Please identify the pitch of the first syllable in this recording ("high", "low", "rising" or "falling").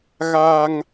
high